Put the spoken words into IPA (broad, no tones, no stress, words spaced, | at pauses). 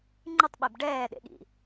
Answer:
ŋ͡ǃɯtˤɓeb ɖɛːɗḛɠḭ